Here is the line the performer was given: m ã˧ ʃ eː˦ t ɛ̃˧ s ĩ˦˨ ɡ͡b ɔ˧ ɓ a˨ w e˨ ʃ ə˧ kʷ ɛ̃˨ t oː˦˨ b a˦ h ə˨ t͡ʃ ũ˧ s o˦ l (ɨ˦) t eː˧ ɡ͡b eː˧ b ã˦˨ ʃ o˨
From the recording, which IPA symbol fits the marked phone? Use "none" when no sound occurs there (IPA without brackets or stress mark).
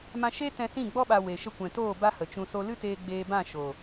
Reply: ɨ˦